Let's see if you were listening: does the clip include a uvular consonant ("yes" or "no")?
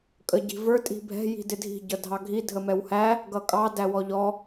no